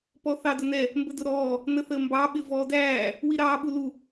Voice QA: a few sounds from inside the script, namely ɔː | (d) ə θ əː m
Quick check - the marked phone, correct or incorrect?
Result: incorrect